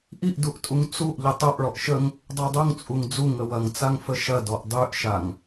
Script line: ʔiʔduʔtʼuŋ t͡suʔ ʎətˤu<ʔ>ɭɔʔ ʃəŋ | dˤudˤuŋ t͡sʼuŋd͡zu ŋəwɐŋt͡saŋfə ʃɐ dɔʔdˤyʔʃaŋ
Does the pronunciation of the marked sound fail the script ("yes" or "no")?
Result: no